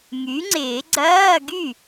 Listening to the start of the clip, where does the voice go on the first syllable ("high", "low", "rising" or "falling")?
rising